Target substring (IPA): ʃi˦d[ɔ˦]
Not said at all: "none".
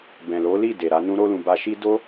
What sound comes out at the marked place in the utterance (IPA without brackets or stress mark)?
o˦